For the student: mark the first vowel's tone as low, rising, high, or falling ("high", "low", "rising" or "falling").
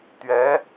rising